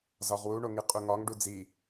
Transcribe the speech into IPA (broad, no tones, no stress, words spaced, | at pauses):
zɒʁwuɳo ŋiqʼuŋɒŋɖu d͡zi